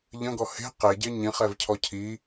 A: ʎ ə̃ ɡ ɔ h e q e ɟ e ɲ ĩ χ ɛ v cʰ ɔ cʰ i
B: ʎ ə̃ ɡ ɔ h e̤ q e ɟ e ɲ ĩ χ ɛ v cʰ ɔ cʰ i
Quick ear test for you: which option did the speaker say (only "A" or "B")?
B